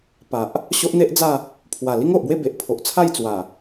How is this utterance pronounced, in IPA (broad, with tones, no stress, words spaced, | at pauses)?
pa˨ʔ | ɕo˦ʔn̪e˦ʔd͡za˥˧ | pʰwa˨˩ li˦ŋo˨ʔbwe˥˧ be˨ʔpʰo˨ʔt͡sʰa˥˧j t͡swa˨˩